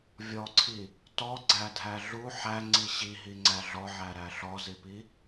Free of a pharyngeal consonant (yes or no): no